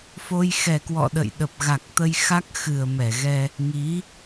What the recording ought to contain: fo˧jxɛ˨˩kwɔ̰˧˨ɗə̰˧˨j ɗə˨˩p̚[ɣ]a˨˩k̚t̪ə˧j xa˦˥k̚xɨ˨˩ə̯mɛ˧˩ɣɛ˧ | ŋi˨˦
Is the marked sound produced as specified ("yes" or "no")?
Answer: yes